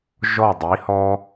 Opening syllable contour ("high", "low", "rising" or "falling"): falling